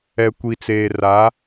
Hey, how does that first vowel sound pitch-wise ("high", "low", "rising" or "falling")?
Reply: low